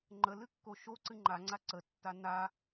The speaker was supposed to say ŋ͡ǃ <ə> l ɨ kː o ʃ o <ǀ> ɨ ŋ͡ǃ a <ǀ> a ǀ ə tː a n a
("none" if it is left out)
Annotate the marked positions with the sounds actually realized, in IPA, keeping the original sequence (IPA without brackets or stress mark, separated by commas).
ə, ǀ, ŋ͡ǀ